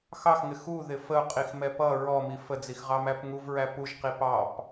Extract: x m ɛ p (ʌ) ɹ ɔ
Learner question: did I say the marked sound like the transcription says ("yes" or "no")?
yes